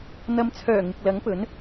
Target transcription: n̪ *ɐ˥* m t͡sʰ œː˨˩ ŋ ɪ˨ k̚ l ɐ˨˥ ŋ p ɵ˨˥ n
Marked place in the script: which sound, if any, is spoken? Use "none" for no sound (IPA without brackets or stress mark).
ɐ˨˧